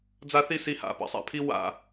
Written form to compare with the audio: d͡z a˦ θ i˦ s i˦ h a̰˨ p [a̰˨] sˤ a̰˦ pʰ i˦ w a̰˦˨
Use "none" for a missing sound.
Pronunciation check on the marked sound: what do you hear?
a̰˨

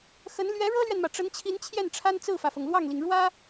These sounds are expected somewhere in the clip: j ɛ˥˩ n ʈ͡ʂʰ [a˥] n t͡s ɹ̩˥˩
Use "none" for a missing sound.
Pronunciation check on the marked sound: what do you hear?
a˥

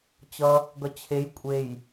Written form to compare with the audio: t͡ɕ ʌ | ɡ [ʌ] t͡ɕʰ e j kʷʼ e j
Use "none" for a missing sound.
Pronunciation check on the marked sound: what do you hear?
ʌ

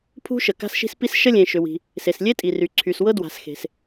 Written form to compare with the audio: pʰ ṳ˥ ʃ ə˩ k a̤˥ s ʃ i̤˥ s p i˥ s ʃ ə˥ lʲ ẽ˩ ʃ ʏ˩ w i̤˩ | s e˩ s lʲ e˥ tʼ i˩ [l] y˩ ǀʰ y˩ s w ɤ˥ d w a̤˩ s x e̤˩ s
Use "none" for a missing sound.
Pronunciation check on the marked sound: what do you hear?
r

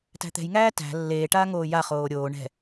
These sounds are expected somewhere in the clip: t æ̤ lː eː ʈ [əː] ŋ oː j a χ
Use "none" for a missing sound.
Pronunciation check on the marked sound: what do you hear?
aː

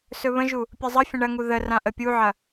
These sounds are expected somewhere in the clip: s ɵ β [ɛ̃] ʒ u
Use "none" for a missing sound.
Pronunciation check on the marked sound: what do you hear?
ə̃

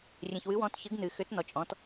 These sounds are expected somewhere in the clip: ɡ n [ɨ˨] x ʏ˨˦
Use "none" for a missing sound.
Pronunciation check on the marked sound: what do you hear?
ɨ˨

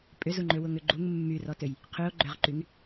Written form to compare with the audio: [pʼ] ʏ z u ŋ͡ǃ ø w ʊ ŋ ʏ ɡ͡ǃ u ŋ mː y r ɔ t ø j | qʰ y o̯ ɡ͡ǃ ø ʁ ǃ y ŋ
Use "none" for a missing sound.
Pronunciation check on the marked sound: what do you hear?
pʼ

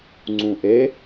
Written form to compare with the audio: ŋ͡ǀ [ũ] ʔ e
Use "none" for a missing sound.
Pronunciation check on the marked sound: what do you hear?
ũ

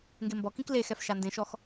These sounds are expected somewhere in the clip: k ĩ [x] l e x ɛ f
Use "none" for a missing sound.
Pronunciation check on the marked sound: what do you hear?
k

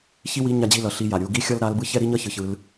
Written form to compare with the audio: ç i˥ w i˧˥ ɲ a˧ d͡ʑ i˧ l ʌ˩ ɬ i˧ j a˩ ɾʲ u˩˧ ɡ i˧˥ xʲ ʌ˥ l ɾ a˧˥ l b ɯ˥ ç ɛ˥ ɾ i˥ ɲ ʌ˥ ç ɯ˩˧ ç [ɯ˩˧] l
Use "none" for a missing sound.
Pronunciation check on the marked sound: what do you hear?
ɯ˩˧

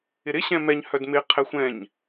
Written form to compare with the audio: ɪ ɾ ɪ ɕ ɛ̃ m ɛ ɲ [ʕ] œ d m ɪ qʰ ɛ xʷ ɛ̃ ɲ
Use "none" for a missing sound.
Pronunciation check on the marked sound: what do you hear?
h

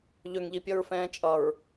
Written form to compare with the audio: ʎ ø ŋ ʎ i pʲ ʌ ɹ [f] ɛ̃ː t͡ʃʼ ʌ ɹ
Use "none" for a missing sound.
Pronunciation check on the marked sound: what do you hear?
f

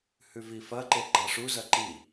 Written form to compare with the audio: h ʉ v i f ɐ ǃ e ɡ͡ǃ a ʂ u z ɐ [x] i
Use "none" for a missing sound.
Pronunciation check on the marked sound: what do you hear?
ǃ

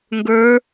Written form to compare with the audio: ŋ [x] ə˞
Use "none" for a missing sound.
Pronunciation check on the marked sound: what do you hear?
ɡ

